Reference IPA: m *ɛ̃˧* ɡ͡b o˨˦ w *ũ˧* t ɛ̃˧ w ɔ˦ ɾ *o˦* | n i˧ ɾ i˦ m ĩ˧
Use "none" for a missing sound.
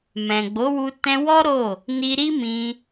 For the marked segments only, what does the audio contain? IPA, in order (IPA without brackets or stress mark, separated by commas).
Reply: ɛ̃˨, u˧, o˦˨